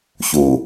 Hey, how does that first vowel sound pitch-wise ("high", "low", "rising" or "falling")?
low